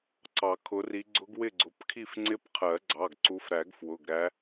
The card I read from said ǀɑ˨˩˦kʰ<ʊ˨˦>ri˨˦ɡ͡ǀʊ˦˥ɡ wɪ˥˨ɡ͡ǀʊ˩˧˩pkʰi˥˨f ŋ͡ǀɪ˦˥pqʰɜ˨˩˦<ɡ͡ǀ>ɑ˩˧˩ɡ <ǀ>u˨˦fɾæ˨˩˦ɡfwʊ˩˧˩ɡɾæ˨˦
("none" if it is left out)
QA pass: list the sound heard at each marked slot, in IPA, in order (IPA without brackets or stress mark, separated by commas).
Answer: ʊ˨˦, ɡ͡ǀ, ǀ